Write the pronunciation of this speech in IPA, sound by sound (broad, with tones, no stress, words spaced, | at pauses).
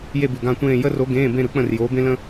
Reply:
je˥˧bʉ˨ɡã˥˧tʷẽː˥˧ jə˥ro˧˥ ɡẽː˧˥˧bẽ˥˧ɾɯ˧˥k͡pə̃˥˧r joː˧˥bẽ˥lə̃˥